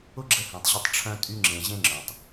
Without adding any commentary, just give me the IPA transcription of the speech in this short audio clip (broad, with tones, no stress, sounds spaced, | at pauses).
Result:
ʊ˦ ɡ͡ǁ ə˧ h ẽ˨ tˤ ʑ ʊ˧ tˤ ʈ͡ʂʰ œ̃˧ tʼ y˧ ŋ͡ǁ ẽ˨ ʑ ẽ˦ ŋ͡ǁ œ̃˨ tˤ